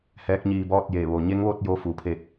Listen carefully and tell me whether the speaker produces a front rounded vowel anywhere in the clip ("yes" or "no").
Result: no